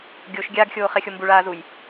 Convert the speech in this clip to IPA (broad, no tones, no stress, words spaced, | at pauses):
ɡʲoʃ ɡʲaːɡxʲoːχɛxʲo mbuɭaːzuj